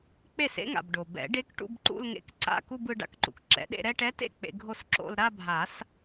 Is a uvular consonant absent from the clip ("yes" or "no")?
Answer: yes